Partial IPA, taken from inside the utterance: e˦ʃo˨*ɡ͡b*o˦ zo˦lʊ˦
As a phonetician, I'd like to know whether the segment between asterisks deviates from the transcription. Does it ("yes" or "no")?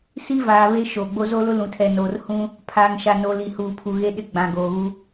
no